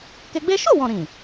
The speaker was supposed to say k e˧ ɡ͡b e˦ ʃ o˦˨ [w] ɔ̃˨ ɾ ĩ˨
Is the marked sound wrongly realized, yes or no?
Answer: no